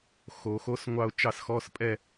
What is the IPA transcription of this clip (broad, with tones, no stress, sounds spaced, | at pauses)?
x o˨˩˦ x o˧˥˧ s ŋʷ ɑ˥˧ ʊ̯ t͡ʃ ɑ˥˧ s x ɔ˧˥˧ s pʼ ɛ˥˧